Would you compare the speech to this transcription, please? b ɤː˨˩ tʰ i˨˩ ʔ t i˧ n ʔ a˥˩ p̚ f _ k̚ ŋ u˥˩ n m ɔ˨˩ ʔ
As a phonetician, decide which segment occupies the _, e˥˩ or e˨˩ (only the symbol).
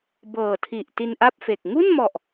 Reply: e˨˩